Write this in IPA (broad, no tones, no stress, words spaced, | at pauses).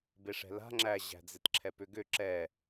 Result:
beʂɛ̤la̤ ŋ͡ǁæʑæ̤ d͡zetǁʰɛpʏɡʏ ǁɛ